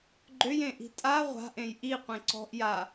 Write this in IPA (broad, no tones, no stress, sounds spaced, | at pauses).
ɡ͡ǃ ʏ j ẽ ʔ i̤ tʼ a ʁʷ a̤ ʔ ẽ j ʔ i qʷ ẽ ǀ ɔ̤ ʔ j a